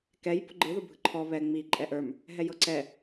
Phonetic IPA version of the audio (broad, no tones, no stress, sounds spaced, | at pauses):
k ɛ j p ʊ ɡ͡ǃ ɯ ð ʊ bʱ ɯ ǃʰ ɔ β ɛ ŋ͡m i ǃʼ ɛ ʔ ə˞ m | ɦ ɛ j ɤ ǀ ɛ